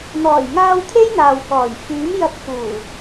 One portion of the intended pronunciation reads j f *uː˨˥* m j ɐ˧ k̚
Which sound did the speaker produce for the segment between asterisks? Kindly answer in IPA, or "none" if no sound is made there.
yː˨˥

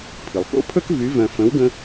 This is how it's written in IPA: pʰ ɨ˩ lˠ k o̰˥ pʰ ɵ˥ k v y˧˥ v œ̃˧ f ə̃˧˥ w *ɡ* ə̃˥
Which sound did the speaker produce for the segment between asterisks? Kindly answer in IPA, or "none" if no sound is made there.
ɡ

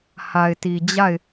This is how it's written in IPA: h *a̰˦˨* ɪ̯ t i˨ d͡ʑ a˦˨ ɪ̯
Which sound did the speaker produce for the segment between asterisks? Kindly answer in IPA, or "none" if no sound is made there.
a˨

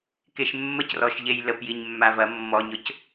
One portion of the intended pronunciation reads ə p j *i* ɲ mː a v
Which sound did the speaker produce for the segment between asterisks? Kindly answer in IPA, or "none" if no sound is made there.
i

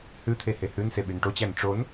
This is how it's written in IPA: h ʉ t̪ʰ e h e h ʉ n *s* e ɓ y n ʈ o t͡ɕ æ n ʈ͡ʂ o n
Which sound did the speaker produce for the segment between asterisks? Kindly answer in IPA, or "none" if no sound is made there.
s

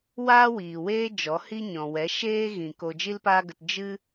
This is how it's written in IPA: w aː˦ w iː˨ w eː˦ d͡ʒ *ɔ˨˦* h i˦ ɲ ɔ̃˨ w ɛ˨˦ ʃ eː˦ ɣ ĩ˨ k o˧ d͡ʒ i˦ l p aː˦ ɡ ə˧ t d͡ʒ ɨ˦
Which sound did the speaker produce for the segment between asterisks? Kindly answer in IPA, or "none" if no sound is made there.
ɔ˨˦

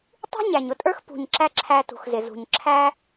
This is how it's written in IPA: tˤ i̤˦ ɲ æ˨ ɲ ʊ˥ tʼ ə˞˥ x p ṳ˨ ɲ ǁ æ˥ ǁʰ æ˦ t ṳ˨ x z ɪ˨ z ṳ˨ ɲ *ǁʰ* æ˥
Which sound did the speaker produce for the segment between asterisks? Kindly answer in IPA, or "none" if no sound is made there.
ǁʰ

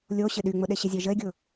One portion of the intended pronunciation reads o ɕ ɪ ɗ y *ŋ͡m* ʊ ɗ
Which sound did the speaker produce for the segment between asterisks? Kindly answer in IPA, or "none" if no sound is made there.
ŋ͡m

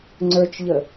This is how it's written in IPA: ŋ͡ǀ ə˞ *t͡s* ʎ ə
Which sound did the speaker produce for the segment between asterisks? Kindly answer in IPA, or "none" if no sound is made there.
t͡ʃ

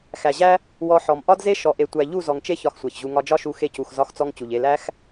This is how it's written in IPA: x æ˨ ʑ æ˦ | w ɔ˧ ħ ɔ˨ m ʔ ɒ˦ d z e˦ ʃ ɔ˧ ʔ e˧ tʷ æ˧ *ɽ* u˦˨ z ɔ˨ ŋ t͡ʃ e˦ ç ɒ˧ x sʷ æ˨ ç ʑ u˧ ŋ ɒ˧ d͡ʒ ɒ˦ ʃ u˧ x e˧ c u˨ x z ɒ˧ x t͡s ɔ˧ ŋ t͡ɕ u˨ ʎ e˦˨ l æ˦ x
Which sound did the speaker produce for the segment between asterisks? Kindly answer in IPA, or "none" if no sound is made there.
ʎ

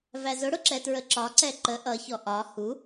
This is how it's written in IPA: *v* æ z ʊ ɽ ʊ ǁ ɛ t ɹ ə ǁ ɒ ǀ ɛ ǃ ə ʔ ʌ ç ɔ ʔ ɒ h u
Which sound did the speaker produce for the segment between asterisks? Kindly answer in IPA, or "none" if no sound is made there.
v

